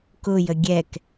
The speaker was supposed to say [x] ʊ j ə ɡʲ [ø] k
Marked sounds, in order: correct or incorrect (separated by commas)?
incorrect, incorrect